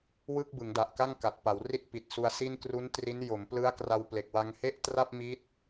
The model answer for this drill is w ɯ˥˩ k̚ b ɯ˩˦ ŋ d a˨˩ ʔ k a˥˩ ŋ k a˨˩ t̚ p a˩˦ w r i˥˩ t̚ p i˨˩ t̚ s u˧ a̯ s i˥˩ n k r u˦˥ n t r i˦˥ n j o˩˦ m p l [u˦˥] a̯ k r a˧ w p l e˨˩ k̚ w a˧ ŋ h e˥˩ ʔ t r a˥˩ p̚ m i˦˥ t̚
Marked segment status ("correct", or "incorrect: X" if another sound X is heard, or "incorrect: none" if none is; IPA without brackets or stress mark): incorrect: ɯ˦˥